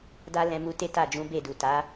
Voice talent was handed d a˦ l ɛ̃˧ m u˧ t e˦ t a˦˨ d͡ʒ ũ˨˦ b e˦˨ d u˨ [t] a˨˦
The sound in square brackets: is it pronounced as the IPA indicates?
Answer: yes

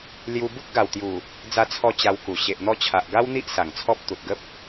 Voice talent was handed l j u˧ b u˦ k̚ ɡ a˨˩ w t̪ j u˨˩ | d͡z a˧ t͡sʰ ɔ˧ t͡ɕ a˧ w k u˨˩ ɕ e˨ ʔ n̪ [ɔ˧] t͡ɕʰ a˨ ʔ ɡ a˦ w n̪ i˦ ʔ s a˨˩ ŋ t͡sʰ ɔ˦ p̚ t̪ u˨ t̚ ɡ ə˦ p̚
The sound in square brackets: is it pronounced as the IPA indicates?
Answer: yes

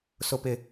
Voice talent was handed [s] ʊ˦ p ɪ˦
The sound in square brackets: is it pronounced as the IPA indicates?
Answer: yes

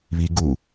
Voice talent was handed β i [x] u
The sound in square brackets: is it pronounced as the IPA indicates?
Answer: no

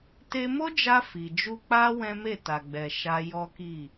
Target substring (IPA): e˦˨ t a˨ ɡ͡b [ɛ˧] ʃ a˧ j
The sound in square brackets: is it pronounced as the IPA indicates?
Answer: no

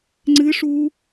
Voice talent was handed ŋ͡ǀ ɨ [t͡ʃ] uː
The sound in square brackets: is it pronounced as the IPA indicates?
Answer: no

